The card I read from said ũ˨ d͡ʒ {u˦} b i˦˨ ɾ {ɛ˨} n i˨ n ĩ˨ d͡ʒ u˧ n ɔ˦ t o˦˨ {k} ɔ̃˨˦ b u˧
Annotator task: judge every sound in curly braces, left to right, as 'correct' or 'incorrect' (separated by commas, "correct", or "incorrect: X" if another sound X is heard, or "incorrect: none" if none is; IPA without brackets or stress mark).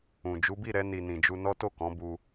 incorrect: u˨˦, incorrect: ɛ˧, correct